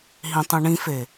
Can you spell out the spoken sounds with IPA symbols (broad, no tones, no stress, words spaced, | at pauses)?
ɦĩtˤũɳĩfe